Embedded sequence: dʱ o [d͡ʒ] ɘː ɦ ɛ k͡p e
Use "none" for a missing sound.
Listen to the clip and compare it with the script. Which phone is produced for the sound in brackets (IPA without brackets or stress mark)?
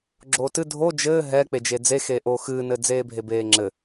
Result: d͡ʒ